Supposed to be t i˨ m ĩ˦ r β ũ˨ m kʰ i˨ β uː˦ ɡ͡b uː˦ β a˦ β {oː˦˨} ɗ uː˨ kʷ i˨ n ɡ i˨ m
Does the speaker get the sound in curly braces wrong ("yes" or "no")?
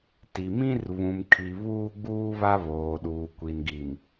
yes